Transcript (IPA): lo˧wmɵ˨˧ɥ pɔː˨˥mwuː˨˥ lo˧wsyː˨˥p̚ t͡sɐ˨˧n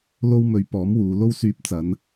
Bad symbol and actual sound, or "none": uː˨˥ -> uː˨˧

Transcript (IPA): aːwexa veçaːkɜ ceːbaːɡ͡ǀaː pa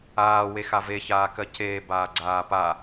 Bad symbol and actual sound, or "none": none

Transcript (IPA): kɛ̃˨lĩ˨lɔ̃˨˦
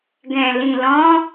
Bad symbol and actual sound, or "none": k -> ɡ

